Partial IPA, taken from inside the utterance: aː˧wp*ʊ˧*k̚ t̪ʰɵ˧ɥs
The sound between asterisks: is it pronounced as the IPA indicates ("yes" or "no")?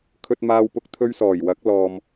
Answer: yes